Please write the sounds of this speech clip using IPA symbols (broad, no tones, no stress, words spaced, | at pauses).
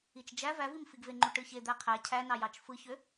it͡ʃd͡ʒæ vævimfiɡve ŋ͡ǃuʈɯçe d̪æqʰæ cʰænɑ jɑt͡ʃfɯçø